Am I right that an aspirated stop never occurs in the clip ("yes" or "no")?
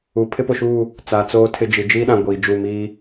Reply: no